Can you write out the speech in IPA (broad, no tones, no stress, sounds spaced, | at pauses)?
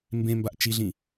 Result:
m b ẽ m b a ʔ t͡ʃ i ɮ ĩ